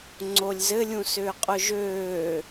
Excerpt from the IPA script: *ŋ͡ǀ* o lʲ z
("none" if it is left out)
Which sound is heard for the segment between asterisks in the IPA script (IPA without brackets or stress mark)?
ŋ͡ǀ